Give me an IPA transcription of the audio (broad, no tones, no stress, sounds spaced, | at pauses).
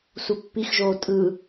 s u pː i x ʒ oː tʼ ɯ